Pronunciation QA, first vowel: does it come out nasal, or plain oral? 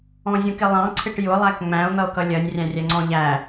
nasal